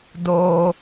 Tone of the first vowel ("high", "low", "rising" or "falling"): high